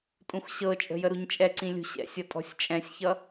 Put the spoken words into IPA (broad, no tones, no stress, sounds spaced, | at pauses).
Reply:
tʼ ũ x ɕ ɤ t͡ʃʼ ə̤ j ə ɾ u ɲ t͡ʃʼ ɛ ǀ ĩ lʲ ṳ ɕ ɛ̰ sʲ ʌ tʼ ɔ̤ sʲ t͡ʃʼ ɛ̃ sʲ ç ʌ